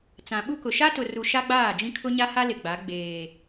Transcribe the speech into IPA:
t͡s ã˨ ɓ u˦ k ʊ˨ ʃ a˦ t ʊ˨ r u˨ ʃ a˦ ɡ͡b aː˦˨ d͡ʒ ĩ˦ kʰ ʊ˦ ɲ a˦ h a˦ l ɪ˨ ɡ͡b a˨˦ ɡ͡b eː˨

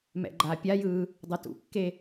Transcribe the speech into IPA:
m ɛ̰ ɡ͡ǃ aː pʲ a j ɯː | dˤ o t ṵ kː e

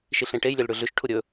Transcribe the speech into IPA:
ʃ i ɬ ẽ ʈ e j lʲ ɵ l ɽ ʉ ɮ ʉ ʃ ʈʰ u ɾʲ ɵ

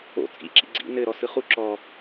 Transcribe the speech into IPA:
o̰ t͡sʼ ḭ ǁ ḭ ɡ͡ǀ ḭ n ɘ ɾ ɔ s ɯ χ u ǁ ɔ

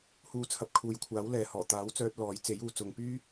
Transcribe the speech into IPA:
h uː˧ t͡sʰ ɐ˨˥ p̚ kʰ uː˨˧ j kʷʰ aː˨˥ w l ɛː˨ h ɔː˨˩ t̪ aː˨˥ w t͡s œː˧ t̚ l ɔː˨˥ j t͡s e˨˥ j uː˨ t͡s ʊ˨ ŋ p yː˥

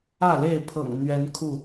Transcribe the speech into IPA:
ä˥˨ l e˥˨ ɪ̯ pʰ ɤ̰˨˩ ŋ n̪ ɥ ɛ˨˦ n kʰ u˥˨

